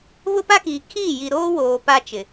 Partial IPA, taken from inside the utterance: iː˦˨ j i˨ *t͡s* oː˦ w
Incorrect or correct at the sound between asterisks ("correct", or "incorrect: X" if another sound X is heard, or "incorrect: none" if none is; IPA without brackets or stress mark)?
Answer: incorrect: ɾ